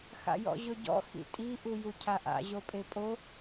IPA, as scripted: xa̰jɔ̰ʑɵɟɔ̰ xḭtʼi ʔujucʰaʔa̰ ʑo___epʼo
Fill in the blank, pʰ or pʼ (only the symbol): pʼ